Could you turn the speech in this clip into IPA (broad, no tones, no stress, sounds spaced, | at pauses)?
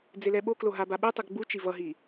d͡z e l ɛ ɓ o k l o ɦ a b a ɓ e tˤ ɯ ɡ ɡ͡b u t͡ʃ i v ʌ ɦ i